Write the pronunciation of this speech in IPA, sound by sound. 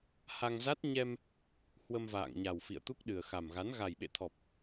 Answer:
h a˧ ŋ z a˦˥ t̚ ɲ ɛ˧ m | h w ə˧ m v a̰ː˧˨ ŋ ɲ a˨˩ w f ḭ˧˨ ə̯ t̪ u˦˥ k̚ ɗ ɨ˨˩ ə̯ x a˨˩ m ɣ a˨˦ n ɣ a˨˩ j ɓ ḛ˧˨ t̪ʰ ɔ˨˩ p̚

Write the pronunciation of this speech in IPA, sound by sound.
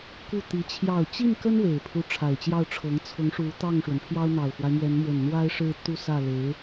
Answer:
k u˥˩ t̪ i˧˥ t͡ɕʰ j ɑ˨˩ ʊ̯ t͡ɕ i˥˩ n k ə˥ n w e˨˩ ɪ̯ pʰ u˦ ʈ͡ʂʰ a˨˩ ɪ̯ t͡ɕ j ɑ˥˩ ʊ̯ ʈ͡ʂʰ ɤ˧˥ ŋ t͡sʰ ʊ˧˥ ŋ ʂ u˧˥ t̪ ɑ˥˩ ŋ ʂ w ə˩ n pʰ j ɑ˥ ʊ̯ n̪ ɑ˨˩ ʊ̯ f w a˦ ɪ̯ m ɥ ɛ˧˥ n m w ə˨˩ n n̪ w a˥ ɪ̯ ʂ ɻ̩˥ t̪ u˥˧ s ä˥˩ l e˧˥ ɪ̯

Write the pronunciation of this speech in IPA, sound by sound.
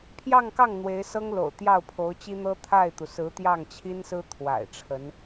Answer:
pʰ j ɑ˥˧ ŋ k ɑ˥˩ ŋ n̪ w e˧˥ ɪ̯ s ɤ˥ ŋ l o̰˨˩ ʊ̯ t̪ j ɑ˥˩ ʊ̯ pʰ o˧˥ ʊ̯ t͡ɕ i˥ n̪ ɤ˥ t̪ʰ a˥˩ ɪ̯ t̪ u˩ s ɹ̩˧˥ t̪ j ɑ˥˩ ŋ t͡ɕʰ i˥ n s ɹ̩˥ t̪ʰ w a̰˨˩ ɪ̯ ʈ͡ʂʰ ə˧˥ n

